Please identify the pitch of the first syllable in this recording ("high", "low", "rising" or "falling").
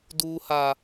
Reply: high